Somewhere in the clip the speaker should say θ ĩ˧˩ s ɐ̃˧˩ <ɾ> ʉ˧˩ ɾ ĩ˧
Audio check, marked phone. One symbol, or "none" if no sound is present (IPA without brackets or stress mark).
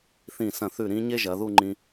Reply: θ